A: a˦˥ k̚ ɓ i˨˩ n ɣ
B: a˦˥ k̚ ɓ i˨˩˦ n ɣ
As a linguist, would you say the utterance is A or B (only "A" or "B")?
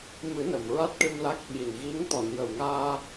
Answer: A